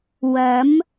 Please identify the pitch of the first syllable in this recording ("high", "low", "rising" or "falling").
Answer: rising